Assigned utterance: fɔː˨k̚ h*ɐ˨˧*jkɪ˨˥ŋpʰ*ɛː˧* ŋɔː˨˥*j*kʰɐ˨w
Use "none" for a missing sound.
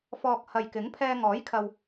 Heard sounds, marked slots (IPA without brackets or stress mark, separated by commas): ɐ˨, ɛː˧, j